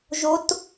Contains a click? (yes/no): no